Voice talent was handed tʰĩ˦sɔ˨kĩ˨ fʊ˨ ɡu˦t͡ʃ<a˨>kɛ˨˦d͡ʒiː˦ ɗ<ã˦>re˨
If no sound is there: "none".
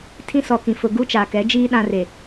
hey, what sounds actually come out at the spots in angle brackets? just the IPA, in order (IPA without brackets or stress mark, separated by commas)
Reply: a˨, ã˦